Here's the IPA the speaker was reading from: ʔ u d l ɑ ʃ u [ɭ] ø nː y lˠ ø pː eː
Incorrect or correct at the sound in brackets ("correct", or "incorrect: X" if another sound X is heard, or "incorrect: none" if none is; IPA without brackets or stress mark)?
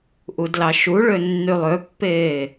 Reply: correct